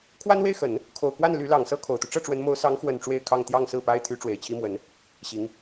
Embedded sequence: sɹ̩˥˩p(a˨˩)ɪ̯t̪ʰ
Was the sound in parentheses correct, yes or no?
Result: no